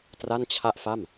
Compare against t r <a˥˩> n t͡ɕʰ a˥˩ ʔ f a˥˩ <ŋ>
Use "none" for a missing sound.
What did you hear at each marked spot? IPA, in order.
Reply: a˥˩, m

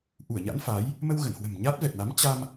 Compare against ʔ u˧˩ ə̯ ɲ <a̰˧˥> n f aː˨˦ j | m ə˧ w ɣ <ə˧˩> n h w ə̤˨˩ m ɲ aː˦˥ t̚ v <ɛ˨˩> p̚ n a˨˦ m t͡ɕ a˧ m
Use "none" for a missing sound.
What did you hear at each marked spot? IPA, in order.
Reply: a̰˧˥, ə˧˩, ɛ˨˩

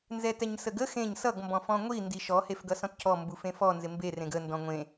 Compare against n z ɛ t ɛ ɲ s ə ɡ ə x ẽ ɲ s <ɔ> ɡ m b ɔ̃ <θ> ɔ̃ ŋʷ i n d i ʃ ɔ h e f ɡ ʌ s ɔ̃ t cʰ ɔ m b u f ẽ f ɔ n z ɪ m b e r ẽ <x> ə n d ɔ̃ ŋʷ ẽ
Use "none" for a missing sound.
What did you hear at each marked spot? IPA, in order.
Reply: ʌ, f, ɡ

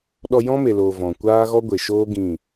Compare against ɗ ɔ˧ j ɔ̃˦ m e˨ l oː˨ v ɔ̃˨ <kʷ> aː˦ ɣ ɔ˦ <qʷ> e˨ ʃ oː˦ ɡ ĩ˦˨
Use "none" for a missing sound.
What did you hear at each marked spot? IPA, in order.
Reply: kʷ, ɡʷ

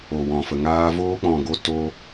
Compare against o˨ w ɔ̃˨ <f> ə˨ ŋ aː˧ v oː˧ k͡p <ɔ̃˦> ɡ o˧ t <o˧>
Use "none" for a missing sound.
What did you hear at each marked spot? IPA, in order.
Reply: f, ɔ̃˨, o˦

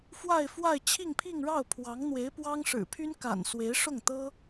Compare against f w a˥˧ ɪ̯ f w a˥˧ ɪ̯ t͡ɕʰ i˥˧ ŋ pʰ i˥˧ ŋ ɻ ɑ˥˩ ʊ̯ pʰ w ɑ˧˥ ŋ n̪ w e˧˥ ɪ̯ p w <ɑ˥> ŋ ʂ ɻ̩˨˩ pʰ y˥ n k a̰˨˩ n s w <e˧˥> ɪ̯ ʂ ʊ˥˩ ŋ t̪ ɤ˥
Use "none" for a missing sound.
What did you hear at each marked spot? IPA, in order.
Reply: ɑ˥, e˧˥

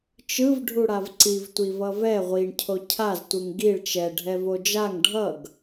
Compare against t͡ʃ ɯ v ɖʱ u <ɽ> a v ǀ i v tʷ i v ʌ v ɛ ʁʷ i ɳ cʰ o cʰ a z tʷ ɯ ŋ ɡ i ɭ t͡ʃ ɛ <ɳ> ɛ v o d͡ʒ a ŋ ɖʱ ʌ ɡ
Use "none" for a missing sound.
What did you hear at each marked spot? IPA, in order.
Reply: ɽ, ɖʱ

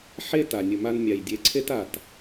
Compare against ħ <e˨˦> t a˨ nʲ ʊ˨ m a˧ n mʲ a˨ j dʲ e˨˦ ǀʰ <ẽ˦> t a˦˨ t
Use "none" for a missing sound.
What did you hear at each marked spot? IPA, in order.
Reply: e˦, e˦

